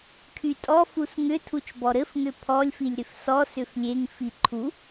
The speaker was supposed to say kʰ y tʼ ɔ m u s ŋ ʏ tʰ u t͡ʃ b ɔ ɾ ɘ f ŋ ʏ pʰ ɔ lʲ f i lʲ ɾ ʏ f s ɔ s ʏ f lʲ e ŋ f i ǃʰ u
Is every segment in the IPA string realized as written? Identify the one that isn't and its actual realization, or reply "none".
m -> f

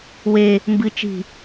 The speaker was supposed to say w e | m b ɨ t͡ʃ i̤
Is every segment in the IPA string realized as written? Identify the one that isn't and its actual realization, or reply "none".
none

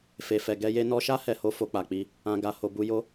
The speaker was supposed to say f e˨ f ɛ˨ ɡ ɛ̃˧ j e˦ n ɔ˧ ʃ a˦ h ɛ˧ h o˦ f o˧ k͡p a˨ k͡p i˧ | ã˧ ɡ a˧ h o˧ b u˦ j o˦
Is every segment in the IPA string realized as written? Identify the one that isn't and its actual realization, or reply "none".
ɛ̃˧ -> ɛ˧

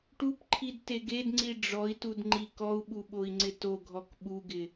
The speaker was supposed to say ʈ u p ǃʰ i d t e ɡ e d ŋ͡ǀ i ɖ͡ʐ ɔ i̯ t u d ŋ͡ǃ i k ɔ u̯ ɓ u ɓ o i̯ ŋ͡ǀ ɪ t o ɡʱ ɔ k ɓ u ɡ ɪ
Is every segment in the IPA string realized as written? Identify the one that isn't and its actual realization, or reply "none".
none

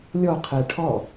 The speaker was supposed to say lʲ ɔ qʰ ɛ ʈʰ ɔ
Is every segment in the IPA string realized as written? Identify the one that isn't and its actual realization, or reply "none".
none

